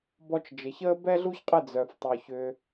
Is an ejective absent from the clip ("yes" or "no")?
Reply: no